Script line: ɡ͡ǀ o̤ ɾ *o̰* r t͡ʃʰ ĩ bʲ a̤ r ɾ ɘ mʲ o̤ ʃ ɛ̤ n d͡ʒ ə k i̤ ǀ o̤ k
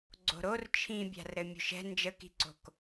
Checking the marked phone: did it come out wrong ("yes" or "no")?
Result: yes